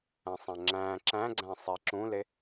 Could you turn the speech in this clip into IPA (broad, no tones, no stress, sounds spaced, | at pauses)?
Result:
æ̃ sˤ æ̃ ŋ͡ǁ æ̃ ǁ æ̃ ɡ͡ǀ æ̃ sˤ e ǁ ũ l e